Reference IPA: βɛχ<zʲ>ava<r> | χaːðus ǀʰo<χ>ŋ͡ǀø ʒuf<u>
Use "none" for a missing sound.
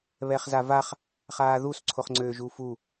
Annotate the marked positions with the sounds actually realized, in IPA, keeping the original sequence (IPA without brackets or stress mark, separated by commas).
z, χ, χ, u